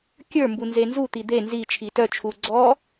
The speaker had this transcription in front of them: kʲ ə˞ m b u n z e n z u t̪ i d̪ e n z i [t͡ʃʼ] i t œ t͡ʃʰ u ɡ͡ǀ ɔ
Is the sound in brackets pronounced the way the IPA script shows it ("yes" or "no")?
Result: no